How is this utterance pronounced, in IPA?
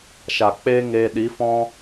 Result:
ʃ a˨ k͡p eː˦ ŋ eː˧ ɗ i˨˦ f ɔ̃˦

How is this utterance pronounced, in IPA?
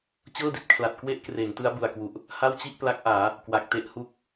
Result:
t͡ɕ ɤː˥˩ d i˨˩ t̚ kʰ l a˨˩ t̚ k w e˥˩ ʔ k r eː˩˦ ŋ t ɯ˦˥ a̯ b u˨˩ a̯ k w u˨˩ ʔ | h a˥˩ w t͡ɕ i˥˩ ʔ p l a˦˥ k̚ ʔ aː˩˦ | k w a˨˩ k̚ t e˦˥ ʔ h u˥˩ k̚

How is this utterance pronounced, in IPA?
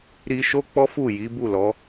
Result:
ɾ i˧ ʃ o˦ k͡p ɔ˦ f u˦˨ j i˨˦ b u˦˨ l ɔ˨˦

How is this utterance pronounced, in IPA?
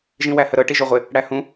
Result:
ʒ ĩ w æ h ə ɾ ɤ ʈ i ʒ o ʁʷ ɪ | ɽ æ h ũ

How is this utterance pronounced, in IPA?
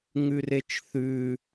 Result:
ŋ ʉ r e t͡ʃ θ ʉ

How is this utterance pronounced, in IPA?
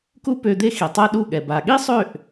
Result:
k u˦ p ø˧ d̪ e˦ x i˨ tˤ a˦ ɗ u˦˨ ɠ ɛ˨ b a˨ ɠ i˦ sˤ ø˦˨ ʔ

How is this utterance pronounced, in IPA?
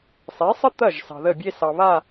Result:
sˤ e˨˦ sˤ ə˦ t̪ ɐ˦˨ ʒ s ɑ̤˨ ð ə˦˨ bʲ e˦ s ɑ˨ β a˦˨

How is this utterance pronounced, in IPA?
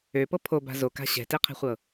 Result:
ø p ɤ pʰ o b a̤ z o k a̤ ɕ ɛ̤ t e qʰ ɛ̤ χʷ ɤ

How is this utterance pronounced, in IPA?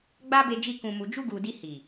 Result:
ɡ͡b a˦ b e˧ d͡ʒ i˧ k ũ˨ m u˨ d͡ʒ u˧ ɡ u˨ d i˧ h i˨

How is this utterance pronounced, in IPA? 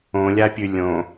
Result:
õ lʲ a pʲ ʉ lʲ õ

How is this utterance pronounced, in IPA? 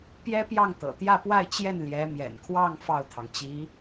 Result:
p j ɛ˥ p j ɑ˥˩ ŋ t̪ ɤ̰˨˩ t̪ j ä˥˧ p w a˥˧ ɪ̯ t͡ɕ j ɛ˥˩ n l j ɛ˧˥ m j ɛ̰˨˩ n kʰ w ɑ˥˧ ŋ f ɑ˥˩ ʊ̯ t̪ʰ ɑ˩ ŋ t͡ɕ i˧˥

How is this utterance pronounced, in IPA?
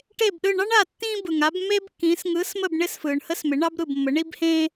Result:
ʈ e˦˨ b ɗ ɯ˦˨ ɳ ɑ˥ ɳ a˦˨ tː ĩː˥ b ɯ˨ ŋ a˨˥ b m eː˥ b kː ĩː˨˥ s ŋ ɯː˨˥ s m ə˦˨ b ɳ ɪ˥ s f ɯː˨ ɳ h ə˥ s m ɪ˨˥ ɳ ɑ˥ b ɾ ɯ˦˨ b mː ə˨˥ ɳ i˥ b h ẽː˥

